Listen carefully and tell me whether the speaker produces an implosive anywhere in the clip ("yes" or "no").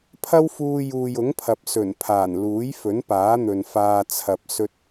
no